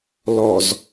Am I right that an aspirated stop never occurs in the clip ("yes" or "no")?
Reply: yes